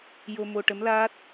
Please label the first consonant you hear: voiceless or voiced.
voiced